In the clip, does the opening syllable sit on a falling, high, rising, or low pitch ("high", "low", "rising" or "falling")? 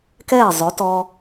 falling